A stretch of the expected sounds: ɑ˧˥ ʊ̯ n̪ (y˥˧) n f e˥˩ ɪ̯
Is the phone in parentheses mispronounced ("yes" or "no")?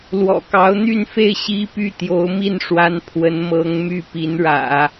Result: no